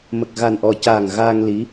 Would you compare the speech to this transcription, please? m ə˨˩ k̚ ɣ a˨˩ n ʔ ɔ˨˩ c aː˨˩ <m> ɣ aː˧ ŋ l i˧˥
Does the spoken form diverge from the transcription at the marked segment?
yes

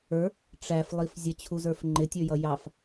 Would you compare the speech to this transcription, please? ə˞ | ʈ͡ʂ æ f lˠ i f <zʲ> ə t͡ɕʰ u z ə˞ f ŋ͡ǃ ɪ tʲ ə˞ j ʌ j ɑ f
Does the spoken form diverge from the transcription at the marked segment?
no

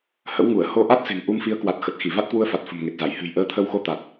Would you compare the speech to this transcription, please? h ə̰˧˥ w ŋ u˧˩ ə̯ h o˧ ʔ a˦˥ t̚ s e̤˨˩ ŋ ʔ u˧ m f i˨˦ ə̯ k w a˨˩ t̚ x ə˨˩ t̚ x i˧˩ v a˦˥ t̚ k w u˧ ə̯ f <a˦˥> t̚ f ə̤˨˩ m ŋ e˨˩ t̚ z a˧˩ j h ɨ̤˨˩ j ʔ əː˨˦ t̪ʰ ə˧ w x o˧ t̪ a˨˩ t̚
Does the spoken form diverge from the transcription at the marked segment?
yes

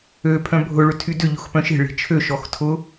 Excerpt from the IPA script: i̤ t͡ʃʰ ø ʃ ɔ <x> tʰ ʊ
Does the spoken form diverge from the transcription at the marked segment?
no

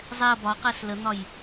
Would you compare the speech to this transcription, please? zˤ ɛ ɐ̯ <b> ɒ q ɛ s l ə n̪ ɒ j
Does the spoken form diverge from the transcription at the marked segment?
no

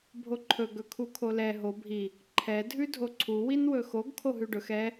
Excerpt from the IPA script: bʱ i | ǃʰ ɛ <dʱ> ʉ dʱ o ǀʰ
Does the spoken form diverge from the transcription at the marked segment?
no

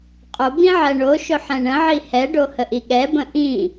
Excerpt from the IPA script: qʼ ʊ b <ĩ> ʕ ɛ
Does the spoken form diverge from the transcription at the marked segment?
no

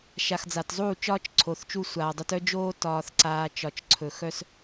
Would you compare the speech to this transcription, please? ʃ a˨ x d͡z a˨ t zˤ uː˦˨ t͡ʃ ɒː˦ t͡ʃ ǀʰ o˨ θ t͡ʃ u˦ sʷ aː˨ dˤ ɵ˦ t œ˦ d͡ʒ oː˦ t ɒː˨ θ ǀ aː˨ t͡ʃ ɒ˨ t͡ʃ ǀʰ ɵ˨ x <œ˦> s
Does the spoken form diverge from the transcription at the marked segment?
no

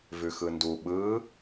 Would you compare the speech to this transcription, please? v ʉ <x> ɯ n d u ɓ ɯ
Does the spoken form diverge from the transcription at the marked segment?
no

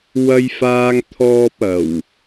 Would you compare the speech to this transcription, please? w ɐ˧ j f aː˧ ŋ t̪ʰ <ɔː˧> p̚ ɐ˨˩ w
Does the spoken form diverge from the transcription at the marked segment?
no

